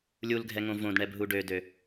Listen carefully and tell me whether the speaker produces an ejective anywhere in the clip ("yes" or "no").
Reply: no